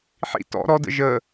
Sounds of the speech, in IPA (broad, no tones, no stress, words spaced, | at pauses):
ħḭ tɔ̰ ɾɔdə̰ ʒə